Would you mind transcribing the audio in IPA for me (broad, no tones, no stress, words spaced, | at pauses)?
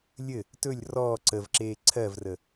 lʲɘ | tɵlʲ rɔː ǀəvǁeː ǀʰɜvrə